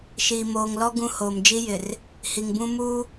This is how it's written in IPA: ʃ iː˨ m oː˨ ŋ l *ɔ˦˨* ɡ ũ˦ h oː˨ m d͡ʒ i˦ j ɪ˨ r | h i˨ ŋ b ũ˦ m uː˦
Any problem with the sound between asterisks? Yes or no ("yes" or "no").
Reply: yes